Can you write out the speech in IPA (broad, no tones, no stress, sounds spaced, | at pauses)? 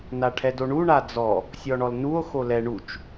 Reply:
n a ʈʰ ɛ d o ɳ u ɳ a d͡z ɔ | sʲ ɔ ɳ ɔ l n u o̯ x o l ɛ ɳ u t͡ʃ